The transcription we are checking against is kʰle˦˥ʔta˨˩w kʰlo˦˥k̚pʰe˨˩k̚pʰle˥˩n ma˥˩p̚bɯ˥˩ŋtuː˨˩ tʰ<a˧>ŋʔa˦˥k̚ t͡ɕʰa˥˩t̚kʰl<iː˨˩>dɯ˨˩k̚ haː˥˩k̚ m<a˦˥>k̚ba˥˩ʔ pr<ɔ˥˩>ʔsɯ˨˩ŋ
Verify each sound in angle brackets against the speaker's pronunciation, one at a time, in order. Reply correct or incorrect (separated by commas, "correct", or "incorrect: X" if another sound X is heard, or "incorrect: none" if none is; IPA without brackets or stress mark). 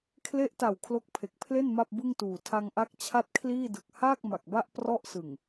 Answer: correct, incorrect: iː˥˩, incorrect: a˨˩, correct